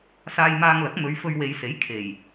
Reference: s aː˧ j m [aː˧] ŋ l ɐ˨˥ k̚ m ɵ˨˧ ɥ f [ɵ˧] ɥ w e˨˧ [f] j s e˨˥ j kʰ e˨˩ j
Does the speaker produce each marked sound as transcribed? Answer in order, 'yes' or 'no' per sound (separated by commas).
yes, yes, no